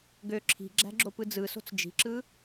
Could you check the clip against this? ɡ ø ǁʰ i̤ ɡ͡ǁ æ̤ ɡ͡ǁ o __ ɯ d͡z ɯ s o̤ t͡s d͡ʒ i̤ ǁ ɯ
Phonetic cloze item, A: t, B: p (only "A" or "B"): B